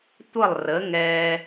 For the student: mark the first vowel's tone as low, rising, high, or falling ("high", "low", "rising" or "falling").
falling